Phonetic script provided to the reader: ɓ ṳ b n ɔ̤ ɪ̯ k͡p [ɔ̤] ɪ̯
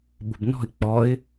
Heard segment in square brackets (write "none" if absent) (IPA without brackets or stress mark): ɔ